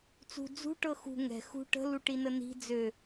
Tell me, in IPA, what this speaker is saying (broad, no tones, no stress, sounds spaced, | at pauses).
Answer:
t͡s ṳ d͡z ṳ ʈ ɤ x ṳ ŋ ɛ̤ x ṳ ʈ ə̤ l u ʈ i n ə n i̤ d͡z ø